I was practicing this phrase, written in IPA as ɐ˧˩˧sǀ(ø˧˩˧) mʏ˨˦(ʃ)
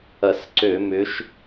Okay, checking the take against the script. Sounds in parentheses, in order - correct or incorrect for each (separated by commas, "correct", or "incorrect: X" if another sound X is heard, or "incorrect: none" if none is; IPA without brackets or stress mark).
correct, correct